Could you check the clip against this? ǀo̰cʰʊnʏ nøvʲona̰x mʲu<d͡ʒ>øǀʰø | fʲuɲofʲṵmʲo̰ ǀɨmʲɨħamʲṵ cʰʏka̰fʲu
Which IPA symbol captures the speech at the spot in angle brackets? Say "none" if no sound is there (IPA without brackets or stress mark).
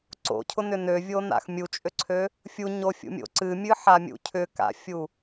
t͡ʃʼ